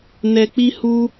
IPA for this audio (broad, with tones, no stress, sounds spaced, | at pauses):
n ɛ˧ k͡p i˦ h u˦